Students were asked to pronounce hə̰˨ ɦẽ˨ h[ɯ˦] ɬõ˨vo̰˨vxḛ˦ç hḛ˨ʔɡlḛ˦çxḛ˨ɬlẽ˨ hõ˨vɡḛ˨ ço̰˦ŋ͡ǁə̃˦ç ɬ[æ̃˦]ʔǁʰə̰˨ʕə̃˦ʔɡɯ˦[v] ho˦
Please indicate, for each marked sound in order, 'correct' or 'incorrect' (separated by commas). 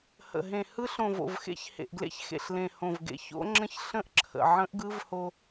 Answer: correct, incorrect, correct